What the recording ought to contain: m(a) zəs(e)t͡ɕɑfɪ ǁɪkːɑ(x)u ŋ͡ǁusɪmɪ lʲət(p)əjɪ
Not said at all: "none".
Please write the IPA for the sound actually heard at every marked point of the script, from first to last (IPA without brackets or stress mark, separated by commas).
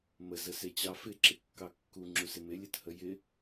ə, e, kː, h